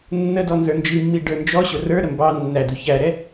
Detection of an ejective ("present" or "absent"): absent